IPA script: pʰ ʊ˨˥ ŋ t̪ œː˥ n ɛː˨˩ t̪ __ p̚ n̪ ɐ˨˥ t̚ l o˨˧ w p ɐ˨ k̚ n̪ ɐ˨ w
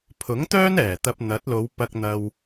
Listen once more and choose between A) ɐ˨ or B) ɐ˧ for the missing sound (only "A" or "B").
B